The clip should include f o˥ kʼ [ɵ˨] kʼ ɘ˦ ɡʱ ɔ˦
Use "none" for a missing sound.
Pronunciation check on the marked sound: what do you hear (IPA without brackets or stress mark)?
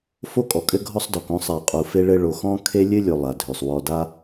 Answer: ɔ˨